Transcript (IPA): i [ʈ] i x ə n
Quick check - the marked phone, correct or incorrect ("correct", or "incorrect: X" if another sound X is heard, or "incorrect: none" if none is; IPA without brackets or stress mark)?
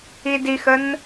incorrect: d